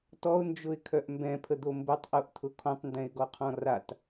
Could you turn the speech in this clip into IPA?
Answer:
t ɔ ʊ̯ n d͡ʒ ʊ ɪ̯ kʰ œ ʔ m b ɛ̃ pʰ ə d̪ o m b ʊ tˤ ʔ o ʔ t̪ʰ ʊ kʰ ɔ̃ tˤ n d ɛ̃ ɪ̯ ɡ ɔ qʰ ɔ̃ r a t

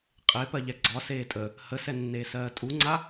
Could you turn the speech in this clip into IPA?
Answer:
qʼ e p ɜ ʎ ɛ ɡ͡ǀ ɒ s eː tʼ ə | h ə s ɛ nː eː s ɜː tʼ u ŋ͡ǀ a

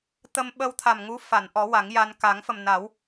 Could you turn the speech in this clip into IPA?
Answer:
t̪ ə˧ m ɓ ə˧ w t̪ʰ a˨˩ m ŋ u˧˥ f a˨˩˨ n ʔ ɔ˨˩˦ w a˨˩˦ ŋ j a˧ n k a˨˩˦ ŋ f ə˨˩ m n a˨˩˦ w

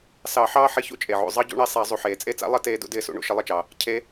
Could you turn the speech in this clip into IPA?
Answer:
s ɑ˧˩˧ ħ ɑː˦ ħ ɪ˨˦ ç ṵ˦ t͡ʃʼ e˩ ʕ ṵ˩ zˤ ɑ˦ ɟ ṵ˦˨ ɳ e˦˨ sˤ a˧˩˧ zˤ u˩ ħ eː˩ t͡sʼ e˦˨ t͡s a̰˦ lˠ ə˦ t eː˦ d ṵ˦ d ɪː˦˨ s ṵ˨˦ ɳ ṵ˨˦ ʃ ə˨˦ lˠ ɪ˦˨ t͡ʃ ɑ˩ | cʰ e˨˦

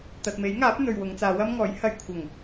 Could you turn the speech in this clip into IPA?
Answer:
t̪ ɐ˨ t̚ m e˨˥ j ŋ aː˨˥ p̚ n̪ ɵ˨ ɥ w ʊ˨˧ ŋ t͡s aː˨˧ w ɐ˥ m ŋ ɔː˨˥ j h ɐ˧ j kʷʰ ɐ˨˩ ŋ

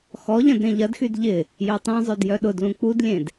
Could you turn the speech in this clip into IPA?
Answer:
x ɔ ʎ ɐ̃ d ɾ ẽ ʎ ɐ d x y d ʎ ɪ | j o tˤ ẽ zˤ œ d j œ ɗ ʊ d l ũ k͡p u d lʲ ẽ d

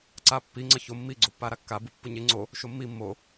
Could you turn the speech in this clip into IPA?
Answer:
ǀ a pː i ŋ͡ǀ ʌ ç o mː i ɡ͡ǀ o pː a ɾ a kː a b ɯ pː ɯ ɲ e ŋ͡ǀ o | ʃ o mː i mː o

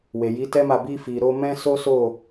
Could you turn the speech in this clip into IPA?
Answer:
w e˨ j i˨˦ t ɛ˦ m a˦˨ b i˧ f i˨ ɾ o˧ m ɛ̃˦ s o˦ s o˦˨

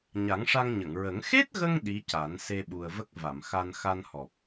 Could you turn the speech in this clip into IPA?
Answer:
ɲ a˨˩˦ ŋ ʂ a˧ ŋ ɲ ə˨˩˨ ŋ ɹ ə˨˩˦ ŋ x e˦˥ t̚ ɣ ə˧ ŋ ɗ i˧˥ c a˨˩˦ n s e˧ ɓ u˨˩ ə̯ v ə˦˥ k̚ v a˨˩˨ m x a˧ n x a˧ n h ɔ˨˩ p̚

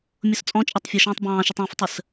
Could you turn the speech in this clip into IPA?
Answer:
mʲ ʊ s t͡sʼ ɔ̃ t͡ʃʼ æ tˤ fʲ ɒ ʃ ĩː tˤ b ɑ̃ː ʃ ɪ tˤ ɑ̃ f tˤ ə s

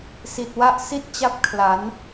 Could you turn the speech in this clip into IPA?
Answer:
s i˨˩ t̚ w a˦˥ ʔ s i˥˩ t̚ t͡ɕ a˦˥ p̚ kʰ l a˩˦ n

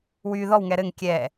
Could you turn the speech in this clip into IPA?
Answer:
w y ð ɔ w ŋ ɛ ɾ ɘ ŋ kʲ ɛ

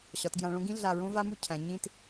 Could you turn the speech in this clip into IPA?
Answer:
ɕ ɒ˨˦ t ɡ j ã˧ ɭ õ˦ ɡ ĩ˦ ɮ a˧ ɹ õ˦ v a˦ m u˦ cʰ æ̃˨˦ ɲ ĩ˦ t

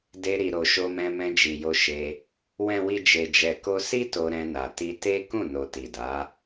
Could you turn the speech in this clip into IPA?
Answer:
d e˧ ɾ i˨ ɾ o˨ ʃ o˧ m ɛ̃˧ m ɛ̃˧ d͡ʒ i˨ j o˧ ʃ e˧ | w ɛ̃˨ w i˨ d͡ʒ e˨ d͡ʒ ɛ˨ k o˧ s i˦ t o˧ ɾ ɛ̃˧ n a˨ t i˧ t e˦ k ũ˦˨ n o˨ t i˨ d a˨˦

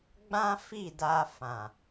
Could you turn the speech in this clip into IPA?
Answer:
ɡ͡b ã˦ f i˦˨ d a˧ f ã˨

